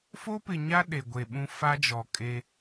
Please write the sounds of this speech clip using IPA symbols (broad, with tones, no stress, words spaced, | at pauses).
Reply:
fo˦pɪ˨ɲa˦ ɗe˨ɡʷe˨ɓũ˦ fa˦d͡ʒɔ˨kʼe˦